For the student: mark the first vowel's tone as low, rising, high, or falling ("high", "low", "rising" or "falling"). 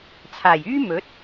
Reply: low